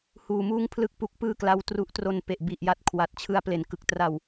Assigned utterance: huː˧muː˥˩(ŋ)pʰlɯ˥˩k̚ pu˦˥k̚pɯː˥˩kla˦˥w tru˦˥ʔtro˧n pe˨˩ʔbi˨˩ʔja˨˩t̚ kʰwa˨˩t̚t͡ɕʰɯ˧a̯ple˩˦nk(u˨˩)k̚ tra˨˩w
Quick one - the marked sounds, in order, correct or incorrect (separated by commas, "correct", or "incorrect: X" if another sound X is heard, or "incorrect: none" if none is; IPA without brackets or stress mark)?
correct, incorrect: ɯ˨˩